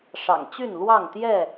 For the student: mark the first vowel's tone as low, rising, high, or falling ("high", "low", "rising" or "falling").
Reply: low